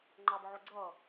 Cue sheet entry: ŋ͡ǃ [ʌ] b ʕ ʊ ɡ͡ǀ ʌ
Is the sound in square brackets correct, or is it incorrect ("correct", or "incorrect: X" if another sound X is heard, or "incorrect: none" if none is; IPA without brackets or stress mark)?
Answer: incorrect: ɑ